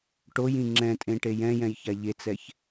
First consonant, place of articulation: retroflex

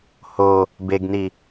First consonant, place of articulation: glottal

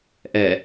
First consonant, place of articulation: glottal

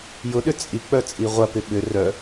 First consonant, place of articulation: palatal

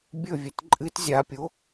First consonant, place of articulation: labial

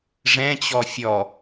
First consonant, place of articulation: retroflex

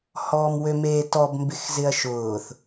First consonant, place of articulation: glottal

